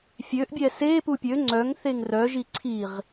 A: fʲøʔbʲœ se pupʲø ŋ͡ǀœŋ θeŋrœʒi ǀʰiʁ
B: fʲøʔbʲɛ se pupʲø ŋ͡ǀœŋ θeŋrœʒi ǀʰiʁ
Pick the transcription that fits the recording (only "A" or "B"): B